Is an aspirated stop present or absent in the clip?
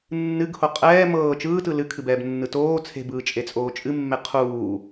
present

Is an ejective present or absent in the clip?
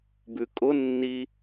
present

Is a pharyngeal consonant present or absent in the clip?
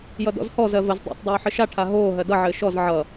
present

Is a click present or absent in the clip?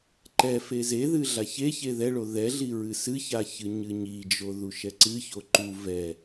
present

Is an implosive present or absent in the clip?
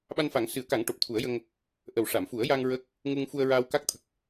present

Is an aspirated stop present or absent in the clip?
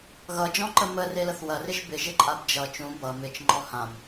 absent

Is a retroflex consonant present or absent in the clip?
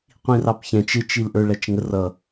present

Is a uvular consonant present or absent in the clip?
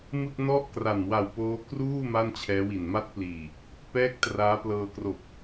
absent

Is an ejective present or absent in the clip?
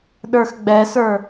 absent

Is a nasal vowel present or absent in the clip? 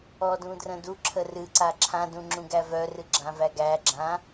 present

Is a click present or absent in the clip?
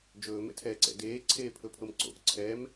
present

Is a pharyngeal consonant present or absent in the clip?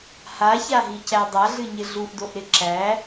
absent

